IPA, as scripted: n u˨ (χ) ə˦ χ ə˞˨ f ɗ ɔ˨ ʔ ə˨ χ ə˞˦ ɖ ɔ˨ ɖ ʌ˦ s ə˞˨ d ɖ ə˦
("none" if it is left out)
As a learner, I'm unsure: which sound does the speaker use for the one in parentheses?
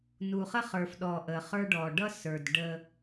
χ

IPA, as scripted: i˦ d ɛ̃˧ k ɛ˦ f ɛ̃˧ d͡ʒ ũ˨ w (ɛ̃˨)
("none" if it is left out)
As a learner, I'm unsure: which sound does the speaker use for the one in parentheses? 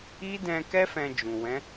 ɛ̃˨˦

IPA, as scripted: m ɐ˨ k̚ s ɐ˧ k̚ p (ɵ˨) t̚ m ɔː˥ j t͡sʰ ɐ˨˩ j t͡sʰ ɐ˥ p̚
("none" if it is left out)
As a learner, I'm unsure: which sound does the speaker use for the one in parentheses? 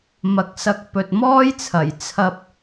ɵ˨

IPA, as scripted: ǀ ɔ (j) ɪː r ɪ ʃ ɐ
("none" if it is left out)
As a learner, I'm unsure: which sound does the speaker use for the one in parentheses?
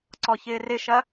ç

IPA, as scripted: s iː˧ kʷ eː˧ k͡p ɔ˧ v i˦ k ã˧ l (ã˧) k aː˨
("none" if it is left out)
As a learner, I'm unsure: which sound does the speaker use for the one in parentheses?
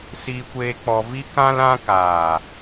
ã˧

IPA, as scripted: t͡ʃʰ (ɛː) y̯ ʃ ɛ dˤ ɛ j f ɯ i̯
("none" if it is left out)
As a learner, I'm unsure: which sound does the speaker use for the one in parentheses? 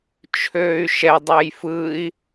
øː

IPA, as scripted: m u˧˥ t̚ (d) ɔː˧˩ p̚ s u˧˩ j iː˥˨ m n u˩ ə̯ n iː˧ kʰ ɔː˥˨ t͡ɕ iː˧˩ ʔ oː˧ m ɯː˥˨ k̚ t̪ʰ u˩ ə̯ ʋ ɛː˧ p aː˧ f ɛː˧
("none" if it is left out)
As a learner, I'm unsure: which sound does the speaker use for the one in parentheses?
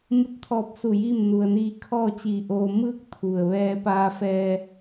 t̪ʰ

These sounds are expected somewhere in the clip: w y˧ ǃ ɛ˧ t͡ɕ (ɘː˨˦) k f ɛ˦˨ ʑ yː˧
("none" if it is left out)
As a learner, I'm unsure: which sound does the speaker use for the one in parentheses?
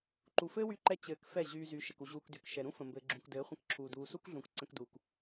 ɘː˨˦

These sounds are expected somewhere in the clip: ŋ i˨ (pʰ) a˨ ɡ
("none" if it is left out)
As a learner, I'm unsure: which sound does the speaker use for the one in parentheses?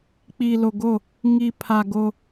pʰ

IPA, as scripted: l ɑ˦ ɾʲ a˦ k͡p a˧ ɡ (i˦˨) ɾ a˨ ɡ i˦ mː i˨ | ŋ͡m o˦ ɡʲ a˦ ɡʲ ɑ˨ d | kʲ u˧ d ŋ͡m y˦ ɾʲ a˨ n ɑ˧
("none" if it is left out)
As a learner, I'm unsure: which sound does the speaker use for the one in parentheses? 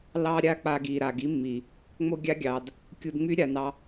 i˨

